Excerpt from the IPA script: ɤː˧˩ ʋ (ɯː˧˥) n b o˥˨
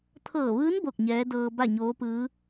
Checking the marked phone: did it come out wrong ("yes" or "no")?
no